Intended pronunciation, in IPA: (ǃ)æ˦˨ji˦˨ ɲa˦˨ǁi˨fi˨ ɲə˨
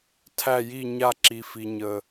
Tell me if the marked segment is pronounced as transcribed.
no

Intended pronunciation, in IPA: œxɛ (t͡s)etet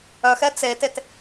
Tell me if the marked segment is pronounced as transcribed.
yes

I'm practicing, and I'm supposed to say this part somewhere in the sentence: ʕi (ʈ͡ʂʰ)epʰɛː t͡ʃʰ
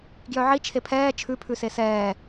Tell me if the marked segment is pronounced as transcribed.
no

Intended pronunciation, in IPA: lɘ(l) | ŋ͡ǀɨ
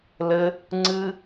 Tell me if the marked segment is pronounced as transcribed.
no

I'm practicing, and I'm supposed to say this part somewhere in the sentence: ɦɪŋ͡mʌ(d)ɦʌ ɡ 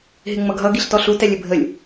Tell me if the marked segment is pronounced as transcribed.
no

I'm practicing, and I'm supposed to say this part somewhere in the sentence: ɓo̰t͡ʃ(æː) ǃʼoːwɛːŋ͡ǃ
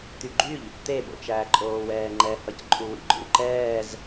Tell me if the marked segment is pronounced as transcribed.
yes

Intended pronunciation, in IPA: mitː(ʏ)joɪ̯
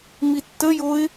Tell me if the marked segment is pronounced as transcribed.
no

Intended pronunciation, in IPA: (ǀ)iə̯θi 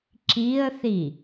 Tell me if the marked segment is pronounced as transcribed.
no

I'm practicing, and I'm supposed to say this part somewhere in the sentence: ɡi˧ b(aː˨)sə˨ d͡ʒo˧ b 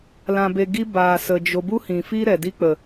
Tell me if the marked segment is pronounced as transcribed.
yes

